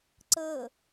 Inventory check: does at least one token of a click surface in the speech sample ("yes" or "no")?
yes